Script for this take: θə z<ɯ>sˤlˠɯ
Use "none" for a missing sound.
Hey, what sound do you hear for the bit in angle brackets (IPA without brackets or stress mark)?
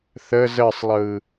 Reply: ə